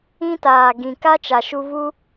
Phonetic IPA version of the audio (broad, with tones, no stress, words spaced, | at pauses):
ĩ˦taː˨ ɡĩ˨ka˦t͡ʃa˨ ʃu˧vu˦